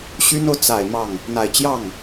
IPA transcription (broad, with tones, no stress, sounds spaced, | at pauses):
ɕ y˥ n o˨ ʊ̯ t͡s a˨˩ ɪ̯ m ɑ˥˩ ŋ | n̪ a˨˩ ɪ̯ t͡ɕ j ɑ˥˩ ŋ